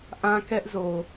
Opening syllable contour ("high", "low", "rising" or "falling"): high